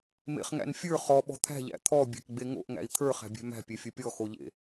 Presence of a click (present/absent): absent